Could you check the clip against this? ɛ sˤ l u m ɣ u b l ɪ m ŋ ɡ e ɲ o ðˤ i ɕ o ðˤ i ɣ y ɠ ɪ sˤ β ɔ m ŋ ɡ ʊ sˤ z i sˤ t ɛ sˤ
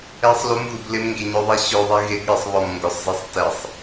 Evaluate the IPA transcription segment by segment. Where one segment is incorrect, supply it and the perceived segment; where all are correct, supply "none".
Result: y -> ɪ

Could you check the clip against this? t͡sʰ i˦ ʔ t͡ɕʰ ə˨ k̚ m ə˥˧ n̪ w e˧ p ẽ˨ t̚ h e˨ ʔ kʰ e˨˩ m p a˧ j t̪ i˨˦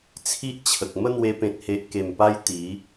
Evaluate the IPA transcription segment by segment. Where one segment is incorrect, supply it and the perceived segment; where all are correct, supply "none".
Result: kʰ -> k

